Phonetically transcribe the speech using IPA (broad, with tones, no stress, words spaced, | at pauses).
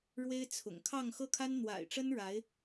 ɻwe˥ɪ̯t͡sʰʊ̰˨˩ŋ kʰɑ˥˧ŋxɤ˥˩kʰa˥n n̪wa̰˨˩ɪ̯ʈ͡ʂə˥n ɻa˧˥ɪ̯